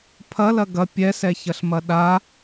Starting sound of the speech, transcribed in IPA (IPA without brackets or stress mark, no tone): pʰ